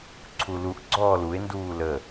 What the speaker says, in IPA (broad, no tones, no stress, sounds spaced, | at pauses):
ǀʰ u l u ʔ ɡ͡ǀ ɔː l u e̯ n d uː l ə